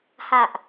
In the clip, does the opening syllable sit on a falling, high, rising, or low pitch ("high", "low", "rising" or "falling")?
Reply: low